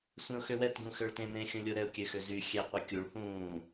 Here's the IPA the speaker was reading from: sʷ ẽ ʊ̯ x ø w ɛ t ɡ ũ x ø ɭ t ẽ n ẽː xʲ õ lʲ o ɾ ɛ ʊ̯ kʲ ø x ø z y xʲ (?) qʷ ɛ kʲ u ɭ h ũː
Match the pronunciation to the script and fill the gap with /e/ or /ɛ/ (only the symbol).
ɛ